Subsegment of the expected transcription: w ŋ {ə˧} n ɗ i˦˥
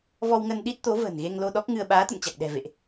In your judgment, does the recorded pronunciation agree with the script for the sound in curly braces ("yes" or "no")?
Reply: yes